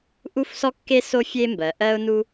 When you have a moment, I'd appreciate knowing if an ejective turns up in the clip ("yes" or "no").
no